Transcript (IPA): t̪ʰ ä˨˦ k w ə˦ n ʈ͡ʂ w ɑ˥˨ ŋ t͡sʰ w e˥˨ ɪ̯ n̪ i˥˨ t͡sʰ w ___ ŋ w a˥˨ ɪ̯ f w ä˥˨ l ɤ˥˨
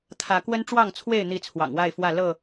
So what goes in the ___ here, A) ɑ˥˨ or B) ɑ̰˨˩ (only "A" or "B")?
B